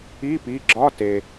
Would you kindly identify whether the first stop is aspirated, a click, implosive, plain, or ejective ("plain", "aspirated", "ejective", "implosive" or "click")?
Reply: plain